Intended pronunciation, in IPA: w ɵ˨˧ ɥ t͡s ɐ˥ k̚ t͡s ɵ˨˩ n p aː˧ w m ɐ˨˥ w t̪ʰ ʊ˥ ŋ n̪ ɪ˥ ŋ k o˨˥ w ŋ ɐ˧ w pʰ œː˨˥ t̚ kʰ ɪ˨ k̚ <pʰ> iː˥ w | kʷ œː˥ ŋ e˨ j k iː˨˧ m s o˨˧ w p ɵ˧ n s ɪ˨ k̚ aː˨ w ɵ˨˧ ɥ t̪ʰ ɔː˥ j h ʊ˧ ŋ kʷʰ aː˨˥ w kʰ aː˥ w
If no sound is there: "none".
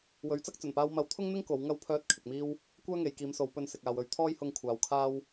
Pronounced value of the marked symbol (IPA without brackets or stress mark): m